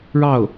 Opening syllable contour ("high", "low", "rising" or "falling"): falling